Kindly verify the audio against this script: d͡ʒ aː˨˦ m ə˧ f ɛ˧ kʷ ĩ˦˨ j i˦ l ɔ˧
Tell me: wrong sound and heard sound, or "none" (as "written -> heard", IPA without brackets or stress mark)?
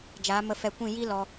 none